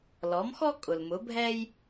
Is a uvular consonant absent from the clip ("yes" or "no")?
yes